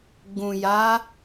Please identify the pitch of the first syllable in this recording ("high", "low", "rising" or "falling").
low